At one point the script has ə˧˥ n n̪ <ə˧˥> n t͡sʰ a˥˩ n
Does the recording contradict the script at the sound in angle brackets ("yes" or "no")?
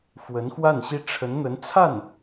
no